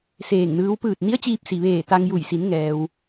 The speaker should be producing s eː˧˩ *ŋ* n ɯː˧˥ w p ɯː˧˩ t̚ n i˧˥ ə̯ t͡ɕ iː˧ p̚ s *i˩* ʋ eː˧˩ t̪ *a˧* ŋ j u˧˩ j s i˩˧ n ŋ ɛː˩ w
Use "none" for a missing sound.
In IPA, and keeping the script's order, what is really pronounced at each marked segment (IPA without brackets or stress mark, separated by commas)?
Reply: ŋ, i˩, a˧